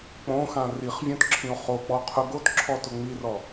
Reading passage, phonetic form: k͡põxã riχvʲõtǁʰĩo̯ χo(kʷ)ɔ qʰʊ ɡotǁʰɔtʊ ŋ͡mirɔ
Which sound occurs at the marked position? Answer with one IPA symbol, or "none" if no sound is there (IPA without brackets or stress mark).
k͡p